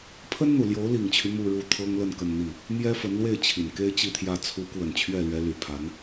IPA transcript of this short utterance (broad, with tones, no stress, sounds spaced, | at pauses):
pʰ ə˥ n n̪ u˨˩ l j o˧˥ ʊ̯ l i˨˩ ŋ t͡ɕʰ y˦ m u˥˧ ɻ u˥˩ t̪ʰ ɤ˥ ŋ l ə˥˧ n k ə˥˧ n n̪ i˥˩ | m j ɛ˥ f ə˧˥ n l w e˥˩ ɪ̯ t͡ɕʰ i˨˩ n k e˥ ɪ̯ t͡ɕ i˥˧ t̪ʰ j ä˥˩ t͡sʰ u˧˥ k w ə˨˩ n t͡ɕʰ ɥ ɛ˥˩ l ɥ ɛ˧˥ l y˨˩ pʰ a˧˥ n